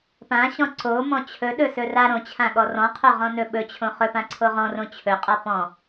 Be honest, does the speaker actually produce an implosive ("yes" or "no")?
yes